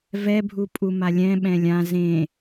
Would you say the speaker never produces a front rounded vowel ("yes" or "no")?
yes